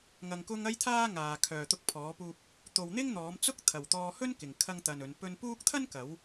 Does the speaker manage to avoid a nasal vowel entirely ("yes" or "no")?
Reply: yes